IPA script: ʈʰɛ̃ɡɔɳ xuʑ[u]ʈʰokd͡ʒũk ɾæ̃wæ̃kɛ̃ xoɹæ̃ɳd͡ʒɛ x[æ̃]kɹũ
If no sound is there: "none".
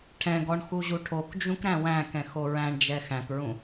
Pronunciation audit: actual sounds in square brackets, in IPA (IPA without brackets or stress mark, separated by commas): u, æ̃